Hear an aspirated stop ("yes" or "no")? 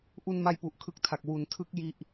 yes